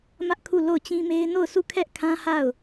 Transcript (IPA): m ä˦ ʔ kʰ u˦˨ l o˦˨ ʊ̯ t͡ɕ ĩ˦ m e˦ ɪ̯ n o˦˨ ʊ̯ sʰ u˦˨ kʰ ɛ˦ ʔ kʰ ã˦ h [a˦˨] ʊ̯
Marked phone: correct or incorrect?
correct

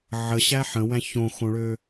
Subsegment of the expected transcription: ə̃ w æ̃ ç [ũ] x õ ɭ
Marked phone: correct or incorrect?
incorrect: õ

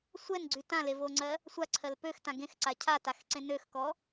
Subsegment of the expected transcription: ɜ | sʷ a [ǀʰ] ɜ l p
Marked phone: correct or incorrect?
correct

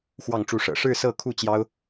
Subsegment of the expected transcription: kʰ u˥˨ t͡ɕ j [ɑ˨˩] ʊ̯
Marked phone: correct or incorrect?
incorrect: ɑ˦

